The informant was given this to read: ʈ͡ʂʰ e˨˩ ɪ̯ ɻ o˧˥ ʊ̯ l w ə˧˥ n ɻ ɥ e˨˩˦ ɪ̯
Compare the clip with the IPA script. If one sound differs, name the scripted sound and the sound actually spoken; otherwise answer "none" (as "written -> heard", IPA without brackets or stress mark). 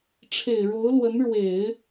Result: ɥ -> w